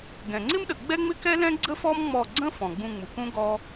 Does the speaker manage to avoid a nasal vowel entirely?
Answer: no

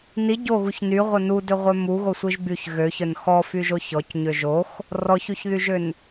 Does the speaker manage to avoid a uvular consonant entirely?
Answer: no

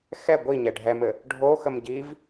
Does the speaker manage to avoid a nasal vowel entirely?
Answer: yes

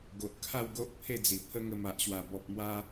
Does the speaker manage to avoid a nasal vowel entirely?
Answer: yes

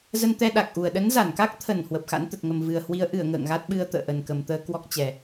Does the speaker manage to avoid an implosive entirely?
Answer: no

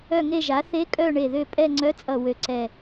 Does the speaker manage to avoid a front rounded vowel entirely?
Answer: no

